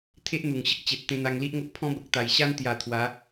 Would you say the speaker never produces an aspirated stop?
no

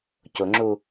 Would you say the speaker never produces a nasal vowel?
yes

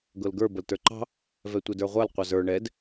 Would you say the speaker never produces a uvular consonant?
no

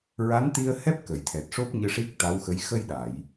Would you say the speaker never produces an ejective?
yes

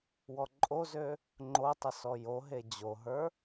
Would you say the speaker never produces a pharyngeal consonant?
yes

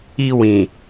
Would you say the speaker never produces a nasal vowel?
no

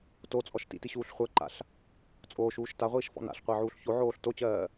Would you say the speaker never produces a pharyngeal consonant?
no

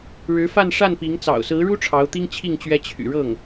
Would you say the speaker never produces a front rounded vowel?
no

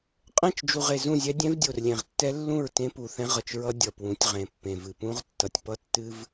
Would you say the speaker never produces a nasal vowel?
no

